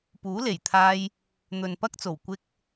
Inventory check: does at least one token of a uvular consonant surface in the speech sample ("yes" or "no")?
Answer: no